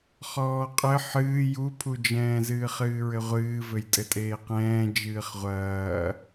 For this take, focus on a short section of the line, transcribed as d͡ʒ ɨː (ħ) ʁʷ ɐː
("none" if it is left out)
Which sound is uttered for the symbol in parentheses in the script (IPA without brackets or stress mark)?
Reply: χ